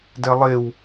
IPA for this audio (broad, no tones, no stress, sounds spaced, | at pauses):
d ɛ lˠ e w